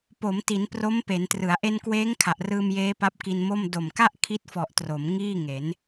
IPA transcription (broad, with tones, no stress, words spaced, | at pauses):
po˩˦mti˩˦n pro˦˥mpe˩˦ntrɯ˩˦a̯ ʔe˧nkweː˦˥ŋ kʰa˨˩ʔrɯː˧mjeː˦˥ pa˦˥p̚ki˧nmo˥˩m do˨˩mka˥˩ʔ kʰi˦˥t̚fɔ˨˩ʔ tro˩˦m ŋiː˥˩ŋe˩˦n